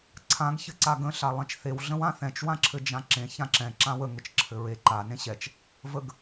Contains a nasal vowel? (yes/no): yes